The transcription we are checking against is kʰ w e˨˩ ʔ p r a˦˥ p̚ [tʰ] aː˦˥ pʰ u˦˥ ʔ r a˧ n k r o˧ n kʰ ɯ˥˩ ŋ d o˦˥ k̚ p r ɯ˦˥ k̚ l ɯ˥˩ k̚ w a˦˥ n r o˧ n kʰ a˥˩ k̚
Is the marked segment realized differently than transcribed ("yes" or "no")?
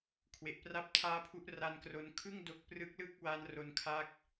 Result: no